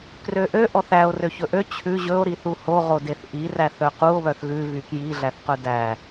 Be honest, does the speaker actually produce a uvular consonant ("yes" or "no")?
yes